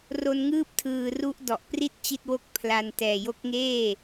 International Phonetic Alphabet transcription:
r o˧ n ŋ ɯː˥˩ p̚ tʰ ɯː˨˩ r u˦˥ ʔ d ɔ˨˩ ʔ p r i˥˩ t̚ t͡ɕ i˥˩ t̚ w o˥˩ k̚ pʰ l a˧ n t ɛː˨˩ j o˦˥ k̚ ŋ eː˥˩

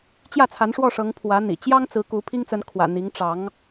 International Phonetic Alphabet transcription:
t͡ɕ j ä˥˩ t͡sʰ a˧˥ n ʂ w ɔ˥˩ ʂ ɤ˧˥ ŋ pʰ w ä˧˥ n̪ ḭ˨˩ t͡ɕ j ɑ˥ ŋ t͡s ɹ̩˧˥ k u˧˥ pʰ i˥ ŋ t͡s ə˧˥ n kʰ w ä̰˨˩ n̪ i˧˥ ŋ ʈ͡ʂ ɑ˧˥ ŋ

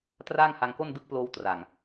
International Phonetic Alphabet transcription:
t r aː˥˩ ŋ h a˧ ŋ k o˥˩ n d ɯ˦˥ k̚ p l oː˧ w t r a˨˩ ŋ

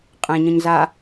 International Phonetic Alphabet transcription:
qʼ ɛ̃ ɲ ə̃ ɲ z a

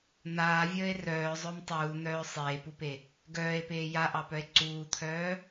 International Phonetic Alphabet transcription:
n̪ aː vʲ əː e̯ r œː zˤ œ m tˤ uː n̪ œː sˤ eː p u p e | ɡ œː e̯ p eː j a ʔ ɑ p œ e̯ ǀ uː t̪ʰ œː

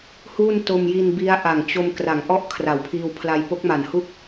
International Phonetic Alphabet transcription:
h uː˥˩ n t o˧ m j i˧ n b i˦˥ a̯ ʔ a˨˩ ŋ t͡ɕ o˧ m k r a˩˦ ŋ ʔ ɔ˥˩ ʔ kʰ r a˩˦ w pʰ iː˧ w pʰ l a˧ j p o˦˥ k̚ m a˨˩ n h u˥˩ k̚

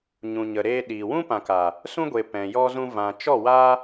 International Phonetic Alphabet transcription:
ɲ ũ˨ ɲ ə˨ ɾ eː˧ ɗ iː˨ w ũ˦ p ã˨ k a˨ | s ũ˦ ɡʷ e˨ p ɛ̃˨ j ɔ˧ z ũ˧ v ã˨ t͡ʃ ɔ˦˨ w a˦

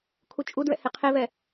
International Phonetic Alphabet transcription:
kʰ u t͡ʃʼ u d ɹ ɛ̰ h e qʰ e v ɛ

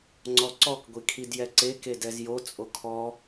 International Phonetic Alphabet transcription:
ŋ͡ǀ ɔ ǀ ɔ k ɡʷ i kʰ i d j ɛ ǀ e k e d ɛ z j o t͡sʼ o kʰ ɔ

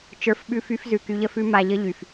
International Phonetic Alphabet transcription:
t͡ʃ ə˞˨˦ f ɓ ʉ˧ f y˧ f z ʉ˨ k y˧ ʎ ə˦ f ʉ˦ m a˧ ʎ ə˦ ʎ y˨ f

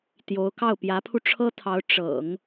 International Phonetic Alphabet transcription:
t̪ j o˧˥ ʊ̯ k ɑ˥˩ ʊ̯ p j ä˧˥ pʰ u˧ ʈ͡ʂʰ ɤ˥ t̪ʰ ɑ˧˥ ʊ̯ ʈ͡ʂ ɤ̰˨˩˦ ŋ

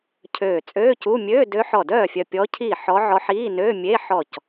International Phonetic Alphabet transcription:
cʰ øː˧˩ t͡sʼ øː˧˥˧ c u˧˥˧ mʲ øː˧˥˧ d ø˧˥ ħ ɔ˧˩ d œː˥˩ fʲ œ˧˩ pʲ ɔ˧˥ cʰ i˥˩ ħ ɔ˧˥ ʕ ɔ˧˥ ħ iː˧˥˧ n ø˧˥˧ mʲ e˧˥˧ ħ ɔ˧˩ c

